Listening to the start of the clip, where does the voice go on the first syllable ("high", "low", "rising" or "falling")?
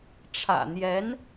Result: low